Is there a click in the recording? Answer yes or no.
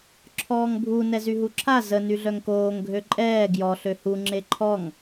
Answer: yes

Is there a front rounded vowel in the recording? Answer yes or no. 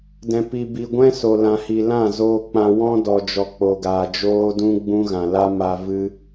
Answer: no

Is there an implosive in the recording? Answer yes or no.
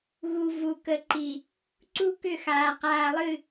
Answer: no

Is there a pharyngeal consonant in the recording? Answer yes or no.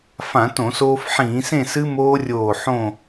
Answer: yes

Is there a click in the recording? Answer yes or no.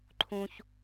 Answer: yes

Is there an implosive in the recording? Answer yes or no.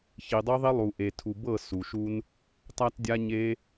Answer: no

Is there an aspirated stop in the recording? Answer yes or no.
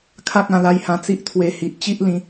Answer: yes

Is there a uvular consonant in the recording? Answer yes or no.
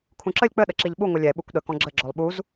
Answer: no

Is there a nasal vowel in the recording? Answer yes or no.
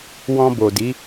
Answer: yes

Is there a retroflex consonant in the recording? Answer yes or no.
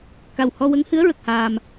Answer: no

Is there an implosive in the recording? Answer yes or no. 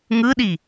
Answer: yes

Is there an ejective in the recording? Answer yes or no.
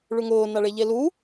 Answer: no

